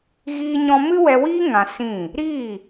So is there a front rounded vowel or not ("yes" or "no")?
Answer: no